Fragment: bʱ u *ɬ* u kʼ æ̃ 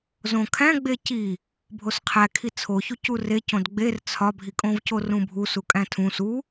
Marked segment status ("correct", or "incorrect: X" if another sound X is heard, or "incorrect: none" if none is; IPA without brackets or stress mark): incorrect: s